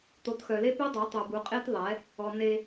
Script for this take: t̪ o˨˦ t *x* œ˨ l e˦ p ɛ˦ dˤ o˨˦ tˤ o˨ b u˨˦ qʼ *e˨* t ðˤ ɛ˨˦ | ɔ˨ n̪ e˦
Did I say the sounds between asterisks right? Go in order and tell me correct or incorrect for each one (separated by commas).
correct, incorrect